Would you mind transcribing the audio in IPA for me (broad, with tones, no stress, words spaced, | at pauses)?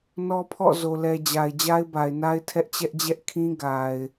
nɔ˦pʰɔ̰˦˨ zo˨lɛ˨d͡ʑa˨ɪ̯ d͡ʑa˦ɪ̯ba˨ɪ̯na˦ɪ̯ tʰɛ˦ʔt͡ɕɛ˦ʔd͡ʑɛ˦ʔ kʰĩ˦ ɡa˨ɪ̯